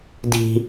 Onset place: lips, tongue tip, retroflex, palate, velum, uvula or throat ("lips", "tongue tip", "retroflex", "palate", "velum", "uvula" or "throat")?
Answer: tongue tip